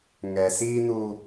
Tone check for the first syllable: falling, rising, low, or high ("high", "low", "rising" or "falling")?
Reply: low